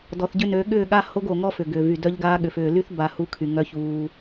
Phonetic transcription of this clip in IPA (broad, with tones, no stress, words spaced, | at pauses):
dɔ˨θɟʏ˦ nø˨˦ ɠʏː˦˨ɠa˦ ho˦ɡo˨ ŋɔ˦fʏ˨ɡʏː˨vy˨ dœ˦ʎɡaː˦ɠʏ˨fʏː˨ ly˦θ ba˦ hu˦kʰy˨ ŋœ˦çuː˦